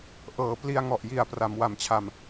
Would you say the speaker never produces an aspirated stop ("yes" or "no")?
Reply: no